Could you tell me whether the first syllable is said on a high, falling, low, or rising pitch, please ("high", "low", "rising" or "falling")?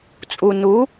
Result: low